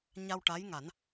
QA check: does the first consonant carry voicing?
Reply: yes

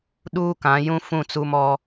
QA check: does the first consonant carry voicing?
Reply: yes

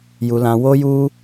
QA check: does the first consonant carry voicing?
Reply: yes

